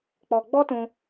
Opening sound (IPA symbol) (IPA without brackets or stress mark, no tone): k͡p